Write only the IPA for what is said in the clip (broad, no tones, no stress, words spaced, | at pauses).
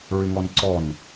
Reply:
ɹɪŋɔnǀɔn